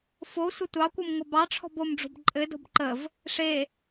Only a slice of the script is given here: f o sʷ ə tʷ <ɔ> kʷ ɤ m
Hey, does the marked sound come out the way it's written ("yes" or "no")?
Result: no